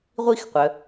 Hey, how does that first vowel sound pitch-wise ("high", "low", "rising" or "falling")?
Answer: falling